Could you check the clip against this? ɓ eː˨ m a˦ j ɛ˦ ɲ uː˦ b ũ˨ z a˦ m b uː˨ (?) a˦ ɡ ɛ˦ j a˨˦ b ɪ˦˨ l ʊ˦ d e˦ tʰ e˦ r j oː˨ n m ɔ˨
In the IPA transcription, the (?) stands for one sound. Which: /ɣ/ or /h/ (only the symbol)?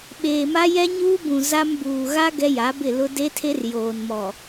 ɣ